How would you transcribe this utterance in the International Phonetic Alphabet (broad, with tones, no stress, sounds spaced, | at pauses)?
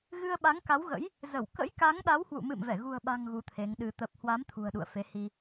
ɣ ɨ˧ ə̯ ɓ a˨˦ ŋ k a˨˦ w ɣ ə̰˧˥ j | z ə˧˩ w k ə̰˧˥ j k a˨˦ ŋ ɗ a˨˦ w h w ṵ˧˨ m ɨ̰˧˨ m v ɛ˧˩ ɣ ṳ˨˩ ə̯ ɓ a̤˨˩ ŋ ɣ u˨˦ t̪ʰ e˨˦ ŋ ɗ ɨ˧ t̪ ə˨˩ p̚ h w a˨˦ m t̪ʰ ṳ˨˩ ə̯ ɗ ṵ˧˨ ə̯ f e˨˦ h i˧